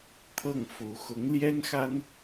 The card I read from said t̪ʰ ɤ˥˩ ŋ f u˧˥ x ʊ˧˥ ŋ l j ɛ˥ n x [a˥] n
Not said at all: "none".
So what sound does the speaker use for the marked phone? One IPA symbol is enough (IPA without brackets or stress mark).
a˥